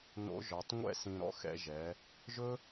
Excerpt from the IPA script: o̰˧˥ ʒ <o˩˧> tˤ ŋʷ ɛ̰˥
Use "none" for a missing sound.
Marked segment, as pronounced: ɔ˩˧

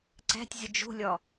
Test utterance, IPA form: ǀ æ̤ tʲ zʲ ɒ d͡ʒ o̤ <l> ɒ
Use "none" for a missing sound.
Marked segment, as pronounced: lʲ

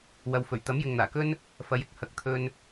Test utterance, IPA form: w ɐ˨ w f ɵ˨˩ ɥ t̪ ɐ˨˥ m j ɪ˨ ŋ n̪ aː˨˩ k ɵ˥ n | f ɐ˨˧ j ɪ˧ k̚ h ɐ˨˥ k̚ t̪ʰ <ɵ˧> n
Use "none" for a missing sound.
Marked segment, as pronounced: ɵ˧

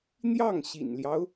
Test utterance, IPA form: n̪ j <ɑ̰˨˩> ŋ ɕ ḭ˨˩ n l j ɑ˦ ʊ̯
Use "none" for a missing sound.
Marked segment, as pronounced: ɑ˥˩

